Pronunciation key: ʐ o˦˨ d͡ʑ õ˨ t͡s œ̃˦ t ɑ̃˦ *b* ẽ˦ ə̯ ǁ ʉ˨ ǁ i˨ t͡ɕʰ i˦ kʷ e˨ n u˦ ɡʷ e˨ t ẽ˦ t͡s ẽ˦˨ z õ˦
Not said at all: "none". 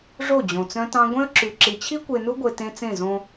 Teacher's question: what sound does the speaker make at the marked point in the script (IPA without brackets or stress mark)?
ɡʷ